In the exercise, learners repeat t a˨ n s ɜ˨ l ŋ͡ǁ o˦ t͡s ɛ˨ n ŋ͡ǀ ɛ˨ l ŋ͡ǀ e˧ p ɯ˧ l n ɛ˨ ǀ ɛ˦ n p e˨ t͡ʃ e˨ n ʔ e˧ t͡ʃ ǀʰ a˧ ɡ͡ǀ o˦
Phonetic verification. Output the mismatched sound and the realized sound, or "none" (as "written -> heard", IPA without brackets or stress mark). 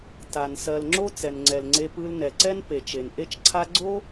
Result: none